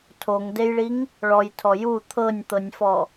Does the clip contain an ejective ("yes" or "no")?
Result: no